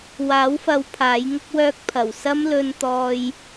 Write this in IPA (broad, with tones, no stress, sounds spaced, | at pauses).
w aː˨˥ w f ɐ˨˧ w pʰ aː˨˥ j ŋ ʊ˥ k̚ w œː˥ k̚ pʰ ɐ˨˩ w s ɐ˥ m l ɵ˧ n t̪ ɔː˧ j